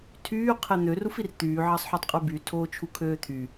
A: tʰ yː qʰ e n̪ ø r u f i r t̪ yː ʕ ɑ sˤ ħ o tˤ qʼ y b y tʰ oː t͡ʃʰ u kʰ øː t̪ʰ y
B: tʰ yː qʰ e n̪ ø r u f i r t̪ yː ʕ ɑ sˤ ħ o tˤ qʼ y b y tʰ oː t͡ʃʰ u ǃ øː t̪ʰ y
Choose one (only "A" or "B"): A